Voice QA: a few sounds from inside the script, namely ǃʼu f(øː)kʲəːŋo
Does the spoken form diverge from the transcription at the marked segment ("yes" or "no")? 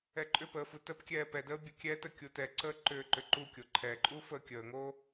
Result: yes